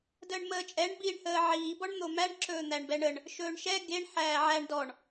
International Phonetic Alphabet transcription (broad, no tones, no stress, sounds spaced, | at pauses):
d əː ɳ m əː t͡ʃʼ ɛ ɳ b i ɳ h əː ʕ iː b ɔ ɳ n̪ o m æ ɳ ǁ ɵː n̪ æ ɳ b ɛ ɳ ə ɳ | ʃ ɵː ɳ ʃ ɛ ɡ e ɳ ħ æː ʕ æ ɳ d ɔ ɳ